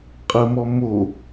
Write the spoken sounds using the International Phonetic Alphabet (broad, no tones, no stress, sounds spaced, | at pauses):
qʼ ə m ɔ m o